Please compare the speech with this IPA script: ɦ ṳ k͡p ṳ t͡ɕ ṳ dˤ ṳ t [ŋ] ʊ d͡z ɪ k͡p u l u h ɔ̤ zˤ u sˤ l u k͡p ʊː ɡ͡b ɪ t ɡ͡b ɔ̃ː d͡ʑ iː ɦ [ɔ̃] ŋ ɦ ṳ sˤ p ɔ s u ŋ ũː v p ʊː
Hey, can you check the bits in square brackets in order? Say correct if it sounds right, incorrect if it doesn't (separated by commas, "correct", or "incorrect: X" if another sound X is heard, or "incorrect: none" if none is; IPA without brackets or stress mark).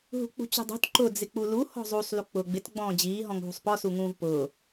incorrect: ǃ, correct